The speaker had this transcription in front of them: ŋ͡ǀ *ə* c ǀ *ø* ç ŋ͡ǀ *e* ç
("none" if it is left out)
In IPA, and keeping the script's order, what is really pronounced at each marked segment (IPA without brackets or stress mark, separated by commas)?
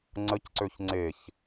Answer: ə, ø, e